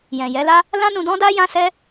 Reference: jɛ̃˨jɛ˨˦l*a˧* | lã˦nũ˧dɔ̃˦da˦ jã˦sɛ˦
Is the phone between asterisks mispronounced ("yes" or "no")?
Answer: yes